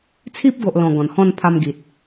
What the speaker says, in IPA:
t͡sʰi˦p̚ɡo˨ʔlɔ̃˨˩ ɡɔ̃˨˩nhɔ̃˥˧n pʰa˧mɡi˨t̚

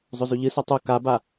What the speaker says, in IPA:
zˤɵzʉʎɨ sɵtˤu kaba

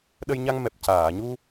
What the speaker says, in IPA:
ɗə˧jɲa˧ŋmɛ˨˩p̚ caː˨˩˨ɲu˧

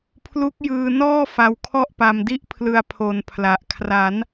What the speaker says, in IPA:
pʰlu˦˥k̚jɯː˧nɔː˥˩ fa˧wkʰɔ˥˩ʔpa˧mdi˥˩ʔ pʰlɯ˧a̯pʰo˨˩n pʰla˨˩ʔ kʰra˩˦n

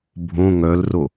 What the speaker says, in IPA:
bʱõ ŋœlro

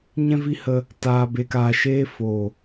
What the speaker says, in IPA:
ɲɛ̃˧vi˧hə˧ | taː˨be˨kaː˨ʃeː˧ fo˨

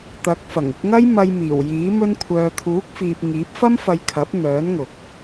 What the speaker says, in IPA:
t̪ɐ˨˥k̚fɐ˨˩ŋ ɪ˧k̚ŋɐ˥jmɐ˧jmiː˨˩w jiː˨˥ mɵ˧nkʷʰœː˨t̪ʰuː˨˥k̚fiː˨p̚ ŋiː˨˥p̚fɐ˥mfɐ˧jkʰɐ˨˥p̚ n̪œː˨˥nŋʊ˨k̚

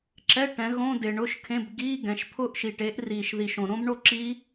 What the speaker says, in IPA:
ǁɛ˧˥˧ ʈɛ̃˩˥ɣõ˧˥˧dɪː˨ ɳʊ˧˥˧ʃkʰẽ˧˥˧b ɡiː˧˥˧ ɡɛ̃˩˥ʃpʰʊː˦˥ʔ ʃi˨ʈe˩˥ʔ riː˨ʃði˨ʃõ˨ ɾõ˦˥bɳo˥˨ǁi˦˥

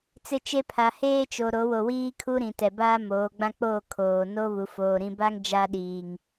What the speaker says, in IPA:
t͡sɪ˦t͡ʃe˦ pʰa˨ heː˦t͡ʃo˨ ɾo˨˦wo˨wiː˦ kʰu˦ɾĩ˨tɛ˨baː˦ moː˨˦ɡ͡bã˦ k͡poː˦˨ kʰoː˨ no˦βu˨foː˨ ɾĩ˨ba˦ŋ d͡ʒa˦ɗiː˨ŋ

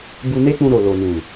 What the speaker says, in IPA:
bu˧ ne˦k͡pũ˧ɾo˨ lo˨nũ˨

